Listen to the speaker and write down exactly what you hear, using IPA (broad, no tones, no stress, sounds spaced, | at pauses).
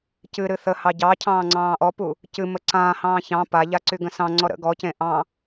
c ɨ ɾ ɨ θ ə h ɑ ɟ ɑ cʰ ɑ̃ː ŋ͡ǀ ɑ̃ː ʔ ɔ p u | c ɨ m ə ǀ ãː h ɑ̃ː ç ɑ̃ p a ʎ a ǀ y ɡ ə̃ s ɑ̃ ŋ͡ǀ ɔ ɾ ə̰ ɡ ɔ c ẽ ʔ ɑ̃